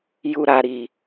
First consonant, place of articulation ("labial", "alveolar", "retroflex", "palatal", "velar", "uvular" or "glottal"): palatal